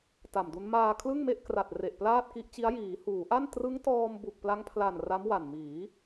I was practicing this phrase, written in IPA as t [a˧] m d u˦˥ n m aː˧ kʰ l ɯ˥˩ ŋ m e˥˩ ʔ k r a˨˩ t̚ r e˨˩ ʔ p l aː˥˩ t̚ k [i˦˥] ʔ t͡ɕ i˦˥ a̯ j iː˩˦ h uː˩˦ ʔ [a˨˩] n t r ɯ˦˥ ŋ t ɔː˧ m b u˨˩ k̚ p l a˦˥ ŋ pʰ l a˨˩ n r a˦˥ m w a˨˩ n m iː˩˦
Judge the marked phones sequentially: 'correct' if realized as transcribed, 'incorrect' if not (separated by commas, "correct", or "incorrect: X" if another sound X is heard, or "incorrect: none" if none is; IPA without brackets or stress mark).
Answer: incorrect: a˨˩, correct, incorrect: a˥˩